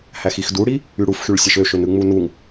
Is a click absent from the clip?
yes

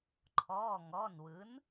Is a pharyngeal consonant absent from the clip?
yes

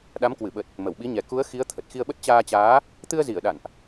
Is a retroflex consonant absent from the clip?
yes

